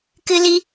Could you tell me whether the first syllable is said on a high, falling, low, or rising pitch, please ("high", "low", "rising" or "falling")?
high